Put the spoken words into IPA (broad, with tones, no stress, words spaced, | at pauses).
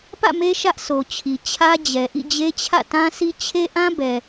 pä̰˦˨me˦ ʃä˦ʔso˨t͡ɕʰi˨ t͡ɕʰä˦d͡ʑɛ˨ ʔḭ˦˨d͡ʑe˦t͡ɕʰä̰˦˨ tã˦si˦ t͡ɕʰe˦ʔã˦bɛ˨